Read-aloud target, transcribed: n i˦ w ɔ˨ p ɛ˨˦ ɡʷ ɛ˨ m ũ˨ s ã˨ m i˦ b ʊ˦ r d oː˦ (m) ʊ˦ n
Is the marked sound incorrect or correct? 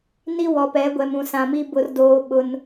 incorrect: ɓ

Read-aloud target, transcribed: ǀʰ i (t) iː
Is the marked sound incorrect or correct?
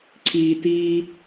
correct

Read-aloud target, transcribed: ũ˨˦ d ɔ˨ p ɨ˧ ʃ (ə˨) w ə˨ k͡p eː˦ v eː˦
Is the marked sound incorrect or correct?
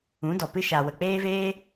incorrect: a˨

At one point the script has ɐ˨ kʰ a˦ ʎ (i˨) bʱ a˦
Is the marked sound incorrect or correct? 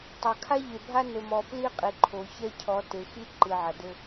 incorrect: e˨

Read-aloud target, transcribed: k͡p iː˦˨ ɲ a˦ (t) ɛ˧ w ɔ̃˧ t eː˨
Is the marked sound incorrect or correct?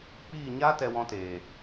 correct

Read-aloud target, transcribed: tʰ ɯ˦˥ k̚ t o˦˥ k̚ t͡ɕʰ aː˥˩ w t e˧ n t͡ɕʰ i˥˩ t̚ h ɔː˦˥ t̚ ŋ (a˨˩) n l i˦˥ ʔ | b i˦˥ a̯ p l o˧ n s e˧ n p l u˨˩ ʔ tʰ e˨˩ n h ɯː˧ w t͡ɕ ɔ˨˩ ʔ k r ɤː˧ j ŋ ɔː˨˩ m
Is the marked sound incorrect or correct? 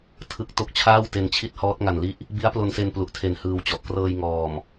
correct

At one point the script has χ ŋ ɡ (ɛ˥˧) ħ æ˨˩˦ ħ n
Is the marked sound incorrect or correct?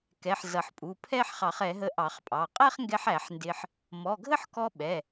incorrect: ɛ˧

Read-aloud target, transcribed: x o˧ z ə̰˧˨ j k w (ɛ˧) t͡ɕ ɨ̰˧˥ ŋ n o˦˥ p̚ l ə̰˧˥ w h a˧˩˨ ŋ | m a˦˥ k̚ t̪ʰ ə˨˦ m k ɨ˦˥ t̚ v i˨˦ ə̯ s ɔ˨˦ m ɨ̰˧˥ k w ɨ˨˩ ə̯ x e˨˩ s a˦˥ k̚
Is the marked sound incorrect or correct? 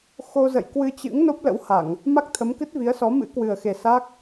incorrect: ɨ˧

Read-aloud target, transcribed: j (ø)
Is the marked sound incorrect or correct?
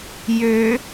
correct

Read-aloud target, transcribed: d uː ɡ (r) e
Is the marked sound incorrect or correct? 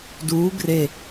correct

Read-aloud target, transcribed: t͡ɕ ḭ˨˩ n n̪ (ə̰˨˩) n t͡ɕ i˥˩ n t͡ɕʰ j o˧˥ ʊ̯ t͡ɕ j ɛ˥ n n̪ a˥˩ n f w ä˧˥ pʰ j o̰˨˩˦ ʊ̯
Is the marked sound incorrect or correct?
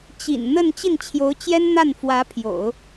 incorrect: ə˥˧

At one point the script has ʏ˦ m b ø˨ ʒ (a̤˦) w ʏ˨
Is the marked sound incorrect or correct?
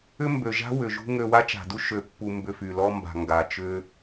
correct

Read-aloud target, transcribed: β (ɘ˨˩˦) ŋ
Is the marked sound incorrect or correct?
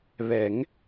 incorrect: ɛ˨˩˦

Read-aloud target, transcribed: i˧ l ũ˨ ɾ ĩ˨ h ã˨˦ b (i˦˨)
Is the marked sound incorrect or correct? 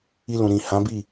correct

